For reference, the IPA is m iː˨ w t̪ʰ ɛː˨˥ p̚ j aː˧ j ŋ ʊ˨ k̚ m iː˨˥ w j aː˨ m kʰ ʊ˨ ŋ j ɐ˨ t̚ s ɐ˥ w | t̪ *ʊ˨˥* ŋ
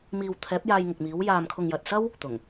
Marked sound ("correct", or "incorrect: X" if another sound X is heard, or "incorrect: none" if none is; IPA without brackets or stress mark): incorrect: ʊ˨˩